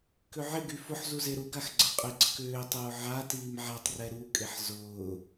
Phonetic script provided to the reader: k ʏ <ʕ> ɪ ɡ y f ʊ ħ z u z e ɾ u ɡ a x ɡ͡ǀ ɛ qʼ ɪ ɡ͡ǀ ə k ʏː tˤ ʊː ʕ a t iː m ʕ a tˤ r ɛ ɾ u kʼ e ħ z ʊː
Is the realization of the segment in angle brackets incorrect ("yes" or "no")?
no